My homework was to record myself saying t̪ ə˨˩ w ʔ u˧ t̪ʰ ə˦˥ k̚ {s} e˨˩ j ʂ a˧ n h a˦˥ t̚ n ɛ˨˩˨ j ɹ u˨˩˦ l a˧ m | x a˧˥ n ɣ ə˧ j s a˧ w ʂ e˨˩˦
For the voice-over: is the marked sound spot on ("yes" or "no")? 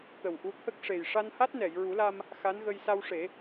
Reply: no